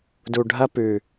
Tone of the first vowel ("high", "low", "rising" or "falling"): low